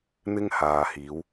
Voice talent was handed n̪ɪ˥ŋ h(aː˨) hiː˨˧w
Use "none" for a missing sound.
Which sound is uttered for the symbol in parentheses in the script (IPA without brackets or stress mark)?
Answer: aː˨